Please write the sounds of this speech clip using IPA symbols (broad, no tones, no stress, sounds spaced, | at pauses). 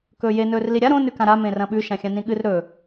k ɵː j e n ɵː r l i ɾʲ a ɾ õ n ʉ k ã ɾ a m ẽ r ɐ̃ ɓ ʉ ʃ ã xʲ ã n ĩ ɠ ɨ r ɾ ɵ